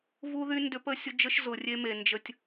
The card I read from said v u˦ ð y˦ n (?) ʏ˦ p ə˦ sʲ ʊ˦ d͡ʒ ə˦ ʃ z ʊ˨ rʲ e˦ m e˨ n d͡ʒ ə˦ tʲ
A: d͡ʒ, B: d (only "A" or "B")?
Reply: B